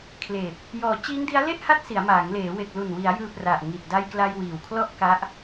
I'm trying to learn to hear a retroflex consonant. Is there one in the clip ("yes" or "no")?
no